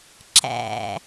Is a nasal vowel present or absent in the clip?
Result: absent